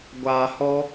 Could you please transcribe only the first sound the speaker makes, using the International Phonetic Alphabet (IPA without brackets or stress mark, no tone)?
ɡʷ